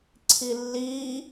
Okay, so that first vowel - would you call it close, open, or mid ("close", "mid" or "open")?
close